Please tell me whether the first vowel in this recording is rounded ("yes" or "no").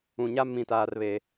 yes